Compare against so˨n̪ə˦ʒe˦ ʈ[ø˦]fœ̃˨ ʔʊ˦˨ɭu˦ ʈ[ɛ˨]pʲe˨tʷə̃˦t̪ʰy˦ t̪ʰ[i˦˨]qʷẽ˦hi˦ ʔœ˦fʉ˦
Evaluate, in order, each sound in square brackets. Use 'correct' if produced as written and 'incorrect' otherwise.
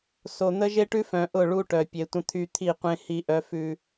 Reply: incorrect, incorrect, correct

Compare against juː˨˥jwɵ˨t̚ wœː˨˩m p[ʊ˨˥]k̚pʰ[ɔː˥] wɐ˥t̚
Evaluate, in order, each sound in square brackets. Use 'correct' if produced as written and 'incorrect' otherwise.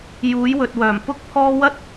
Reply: incorrect, correct

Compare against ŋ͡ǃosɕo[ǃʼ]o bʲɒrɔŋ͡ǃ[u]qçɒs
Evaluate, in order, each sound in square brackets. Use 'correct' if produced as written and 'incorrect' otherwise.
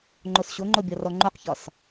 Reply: incorrect, correct

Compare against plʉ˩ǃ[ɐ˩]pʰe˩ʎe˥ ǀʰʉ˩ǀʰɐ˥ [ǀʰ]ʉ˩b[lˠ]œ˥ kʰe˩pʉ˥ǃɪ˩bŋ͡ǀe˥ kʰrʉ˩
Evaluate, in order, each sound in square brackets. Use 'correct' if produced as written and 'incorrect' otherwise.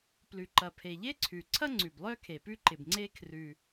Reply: correct, incorrect, correct

